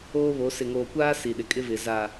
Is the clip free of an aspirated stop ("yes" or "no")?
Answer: yes